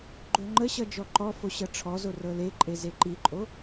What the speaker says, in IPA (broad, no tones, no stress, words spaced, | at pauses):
ɡ͡ǃoŋ͡ǃəɕʌ d͡ʒɔǃɔfo ɕʌʈ͡ʂʰɔzo rɤleǃʼe zeǃiǃʼo